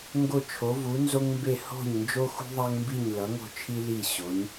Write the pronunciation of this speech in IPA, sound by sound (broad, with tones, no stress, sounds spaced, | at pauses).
ŋ ɡ o˧˩ t͡ʃʰ o˩˧ v u˩˧ n z o˧ ŋ m b e˧˩ h o̤˧˩ ɲ n d͡ʒ o˧ x ṳ˧ ðˤ a˧ ŋ m b i˧˩ ɲ l ʌ˩˧ ŋ o̤˧˩ t͡ʃʰ i˧ l i˧˩ ɕ o˩˧ ɲ